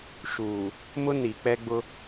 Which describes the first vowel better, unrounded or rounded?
rounded